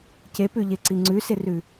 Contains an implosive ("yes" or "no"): no